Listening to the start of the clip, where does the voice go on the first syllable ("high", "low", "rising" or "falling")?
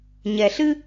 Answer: low